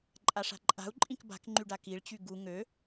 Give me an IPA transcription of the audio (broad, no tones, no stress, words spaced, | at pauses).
ǃʼaʂa̤ǃʼa̤u̯ ǃʼĩkba̤kŋ͡ǃyɖa kiɭt͡ɕy ɡu ŋø